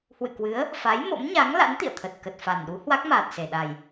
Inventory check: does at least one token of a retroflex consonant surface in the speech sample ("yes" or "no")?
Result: no